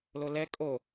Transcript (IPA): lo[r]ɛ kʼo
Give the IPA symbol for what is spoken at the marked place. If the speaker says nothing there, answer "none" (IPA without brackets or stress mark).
l